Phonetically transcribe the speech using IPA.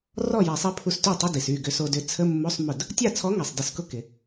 rɔ˥˩ja˨˩˦sˤi˨˥ pʰu˧sty˥˩tˤə˧˥˧di˩s y˥˩ɡʏ˧so˧dʏ˨˥ t͡sʰə˧˥˧mːo˧˥˧sˤ mʊ˥˩d | tʲa˥˩t͡sʰɔ˨˥ ŋa˩sˤdə˨˩˦skʊ˥˩ kɪ˧

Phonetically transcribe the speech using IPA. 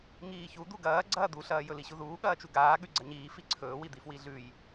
ŋiːçu d̪uɡɐː ɡ͡ǀɐːd̪uɬɐː jɵliɕuðuː ɠɐːt͡ʃuɡaː ɠʉɡ͡ǀɐɲiː fiǀʰɵːwid̪i fwiɮʉj

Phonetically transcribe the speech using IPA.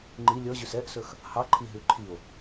ŋ͡ǃi lʲɔʑʉs ɛʔsɵx | hɑǃʰiɦʉ ǃʰio̯

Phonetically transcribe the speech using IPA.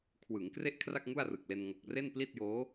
kʰwɯ˩˦ŋ kre˥˩ʔkʰra˥˩k̚ ŋu˥˩a̯rɯ˨˩k̚le˧n ŋo˨˩k̚re˥˩n pli˥˩t̚joː˦˥

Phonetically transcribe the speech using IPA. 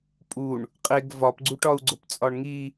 pʼuɳ | qʼeɡ vɒpɡ͡ǀuʈɒu̯ɡ͡ǀop t͡sʼɒɳŋi

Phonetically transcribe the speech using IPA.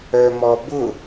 œmɔbʊ

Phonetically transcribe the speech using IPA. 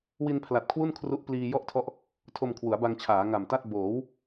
wi˧npʰla˨˩t̚kʰwu˥˩n kʰru˦˥ʔpliː˧jɔ˥˩ʔtʰɔ˦˥ʔ | tʰo˧mkʰwu˩˦a̯ba˧ŋt͡ɕʰaː˩˦ ŋa˨˩mta˥˩t̚ boː˩˦w

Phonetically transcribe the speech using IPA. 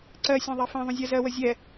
ǀɜ sʲɛ̃ðˤɛfɛ̃ðˤõ zʲɜzɜwə zʲɛ

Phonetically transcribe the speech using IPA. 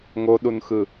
ŋoɗunxɯ

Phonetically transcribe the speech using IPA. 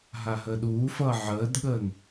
ɦaɦəːɗuːfʌː ʕəːdɠəːn

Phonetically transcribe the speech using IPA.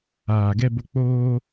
aː˨ɡɛ˧bo˧ k͡poː˦

